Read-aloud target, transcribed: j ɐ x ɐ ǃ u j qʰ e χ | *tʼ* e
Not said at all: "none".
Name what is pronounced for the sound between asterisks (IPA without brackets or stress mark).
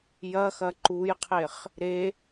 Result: ɾ